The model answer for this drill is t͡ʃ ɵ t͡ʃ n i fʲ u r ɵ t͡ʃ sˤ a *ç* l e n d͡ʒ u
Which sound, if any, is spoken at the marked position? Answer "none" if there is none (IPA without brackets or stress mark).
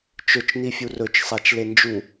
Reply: t͡ʃ